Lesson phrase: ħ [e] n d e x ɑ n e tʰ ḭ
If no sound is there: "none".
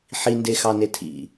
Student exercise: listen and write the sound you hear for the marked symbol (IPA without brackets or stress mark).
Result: i